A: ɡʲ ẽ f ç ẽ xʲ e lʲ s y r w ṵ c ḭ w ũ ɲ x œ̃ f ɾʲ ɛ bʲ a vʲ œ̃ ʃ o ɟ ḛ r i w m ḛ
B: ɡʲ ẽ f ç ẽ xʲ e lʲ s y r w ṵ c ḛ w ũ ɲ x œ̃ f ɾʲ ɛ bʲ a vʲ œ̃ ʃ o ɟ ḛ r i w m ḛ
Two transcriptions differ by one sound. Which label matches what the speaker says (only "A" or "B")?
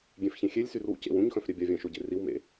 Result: B